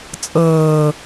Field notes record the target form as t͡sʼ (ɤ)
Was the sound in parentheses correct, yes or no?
no